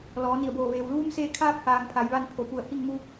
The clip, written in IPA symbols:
l ɔː˩˧ n i˧˩ ə̯ b oː˧˩ ʋ eː˩ w l uː˧˥ m s eː˧ kʰ aː˧ p̚ h aː˩ ŋ pʰ a˩˧ j ʋ a˧ n pʰ o˩˧ p u˧˩ ə̯ h i˥˨ ŋ m u˧

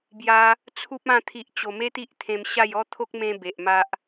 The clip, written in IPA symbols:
b j a˧ | t͡sʰ u˦ p̚ ã˥˧ t̪ʰ i˨ ʔ t͡ɕ o˨˩ m e˦ t̪ i˦ ʔ t̪ʰ ẽ˧ m ɕ a˥˧ j ɔ˦ t̪ʰ o˦ k̚ m ẽ˦ b e˨ ʔ m a˦ ʔ

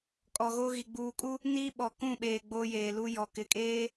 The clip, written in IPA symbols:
kʼ ɔ˨ ɣ o˦ ɣ i˨ ɡ͡b uː˨ kʼ u˦ | n iː˦ ɓ ɔ˨ k ũ˦˨ ɓ eː˨ ɡ͡b o˦ j eː˨ l u˦ j ɔ˨ k ɪ˨ kʼ eː˦

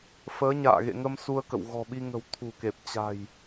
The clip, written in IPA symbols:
f əː˨˦ ɲ a̰ː˧˨ ɣ ḛ˧˨ ŋ ə˧ m s u˧ ə̯ k ə̰˧˨ w ɣ ɔ̤˨˩ ɓ i˧ ŋ ə̤˨˩ w t̪ʰ ṳ˨˩ k e˨˩ p̚ t͡ɕ a̤˨˩ j

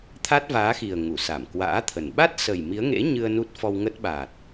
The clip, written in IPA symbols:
t̪ʰ a˦˥ t̚ v aː˨˦ x i˨˩ ə̯ ŋ u˧˩ s a˧˩ m k w a̰ː˧˥ t̪ʰ ə˨˩ n ɓ a˦˥ t̚ s ə˨˩ j m i˨˦ ə̯ ŋ ḛ˧˥ ɲ ɨ˧ ə̯ n u˦˥ t̚ f ɔ˧ w ŋ ə˦˥ t̚ ɓ a˨˩ t̚

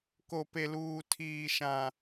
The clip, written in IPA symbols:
k o˨ p e˨ l uː˨ tʰ iː˨ ʃ ã˨

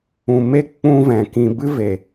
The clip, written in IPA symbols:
ũ˨ m e˦ k͡p ũ˦ v ɛ̃˨ k ĩ˧ b ɨ˦ v e˨

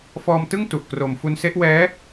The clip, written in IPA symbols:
f ɔː˧ m t ɯ˥˩ ŋ t u˨˩ ʔ k r o˨˩ m f u˧ n s e˦˥ ʔ w ɛː˦˥

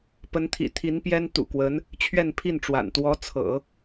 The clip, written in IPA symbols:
p ə˧˥ n t̪ʰ ḭ˨˩ t̪ʰ i˧˥ n p j ɛ˥ n t̪ ṵ˨˩ k w ə˧˥ n | t͡ɕʰ ɥ ɛ˥˧ n pʰ i˥˩ n ʈ͡ʂ w a̰˨˩ n t̪ w ɔ˧˥ t͡sʰ ɤ̰˨˩˦

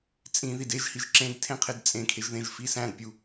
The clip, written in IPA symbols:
t͡sʼ ĩ ð i d e ʒ h i ʒ ǁ ẽ d tʰ ẽ qʰ e d t͡sʼ ẽ kʰ e ʒ ð ẽ ʒ f i s æ̃ d pʲ u

